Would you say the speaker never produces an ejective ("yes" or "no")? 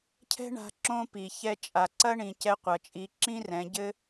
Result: no